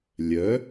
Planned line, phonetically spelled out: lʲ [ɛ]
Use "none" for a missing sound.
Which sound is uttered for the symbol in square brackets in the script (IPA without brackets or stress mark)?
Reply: œ